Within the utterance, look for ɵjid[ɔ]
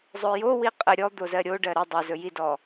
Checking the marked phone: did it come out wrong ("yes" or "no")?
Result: no